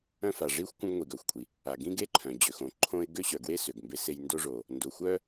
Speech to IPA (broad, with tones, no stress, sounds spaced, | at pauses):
œ̃˥ f a˩ ʐ i˥ xʷ kʷ œ̃˥ ɡ ŋʷ i˩ ɡ œ˩ xʷ kʷʼ i˩ | a˩ ɡ ĩ˥ ɡ e˥ ǃʰ œ̃˩ d͡ʑ ø˩ x õ˩ ǃʰ õ˥ ɪ̯ ɡ ø˥ ɕ œ˩ ɡ w e˥ s ø˩ ɡ m b e˥ s e˥ j n d o˥ ʐ o˩ | n d o˩ xʷ œ˥